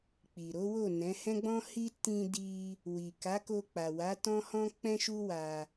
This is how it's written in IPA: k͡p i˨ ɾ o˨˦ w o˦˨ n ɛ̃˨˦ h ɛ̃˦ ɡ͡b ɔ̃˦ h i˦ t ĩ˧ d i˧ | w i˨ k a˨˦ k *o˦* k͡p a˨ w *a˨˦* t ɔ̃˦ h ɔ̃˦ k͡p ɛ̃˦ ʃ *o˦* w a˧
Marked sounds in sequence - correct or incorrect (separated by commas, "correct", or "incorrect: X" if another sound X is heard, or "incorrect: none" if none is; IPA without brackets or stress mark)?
incorrect: o˧, correct, incorrect: u˦